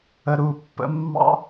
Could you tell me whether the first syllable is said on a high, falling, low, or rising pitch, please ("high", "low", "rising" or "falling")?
low